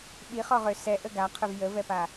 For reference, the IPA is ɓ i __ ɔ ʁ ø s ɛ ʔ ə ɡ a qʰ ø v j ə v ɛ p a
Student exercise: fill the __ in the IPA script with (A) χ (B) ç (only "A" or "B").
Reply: A